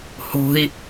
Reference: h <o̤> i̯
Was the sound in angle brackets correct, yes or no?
yes